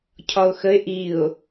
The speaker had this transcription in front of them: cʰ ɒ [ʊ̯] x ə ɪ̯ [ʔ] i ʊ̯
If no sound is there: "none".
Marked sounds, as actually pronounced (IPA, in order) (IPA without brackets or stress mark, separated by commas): ʊ̯, ʔ